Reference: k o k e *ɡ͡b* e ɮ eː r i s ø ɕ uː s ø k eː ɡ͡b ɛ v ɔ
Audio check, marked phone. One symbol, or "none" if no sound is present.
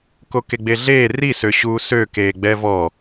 ɡ͡b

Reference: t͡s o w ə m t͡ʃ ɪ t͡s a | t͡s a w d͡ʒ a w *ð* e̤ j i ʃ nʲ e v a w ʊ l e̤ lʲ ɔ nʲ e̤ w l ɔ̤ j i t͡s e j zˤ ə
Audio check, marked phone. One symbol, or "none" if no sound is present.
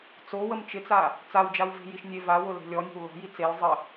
v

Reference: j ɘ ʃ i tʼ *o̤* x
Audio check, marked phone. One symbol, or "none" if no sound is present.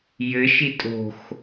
o̤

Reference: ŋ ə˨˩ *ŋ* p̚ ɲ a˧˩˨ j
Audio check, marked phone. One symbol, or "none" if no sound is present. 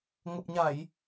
none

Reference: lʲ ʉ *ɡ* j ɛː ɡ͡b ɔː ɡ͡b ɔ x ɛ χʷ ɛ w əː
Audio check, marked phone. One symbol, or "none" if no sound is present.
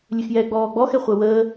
x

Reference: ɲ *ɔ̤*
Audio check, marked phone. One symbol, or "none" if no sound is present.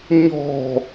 ɔ̤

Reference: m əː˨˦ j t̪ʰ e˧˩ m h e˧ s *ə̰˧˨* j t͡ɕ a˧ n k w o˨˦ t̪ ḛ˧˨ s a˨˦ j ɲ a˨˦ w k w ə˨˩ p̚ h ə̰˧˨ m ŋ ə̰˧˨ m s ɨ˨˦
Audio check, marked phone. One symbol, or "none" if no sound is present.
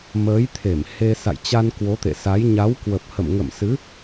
a̰˧˨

